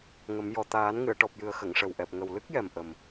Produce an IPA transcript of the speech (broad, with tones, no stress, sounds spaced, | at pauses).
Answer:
ŋ ə˨˩˦ m j ɔ˨˩ t̪ aː˨˩˦ n ŋ ɨ˨˩˨ ə̯ ʈ ɔ˨˩ p̚ j ɨ˨˩ ə̯ x ə˨˩˨ ŋ ʂ ə˨˩ w ʔ ɛ˨˩ p̚ ŋ ə˨˩ w l ɨ˦˥ k̚ j ɛ˨˩ m ʔ ə˨˩ m